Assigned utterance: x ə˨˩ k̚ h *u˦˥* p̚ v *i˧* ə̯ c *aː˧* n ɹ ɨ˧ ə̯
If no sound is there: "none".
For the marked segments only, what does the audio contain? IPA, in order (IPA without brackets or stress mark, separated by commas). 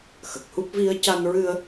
u˦˥, i˧, a˧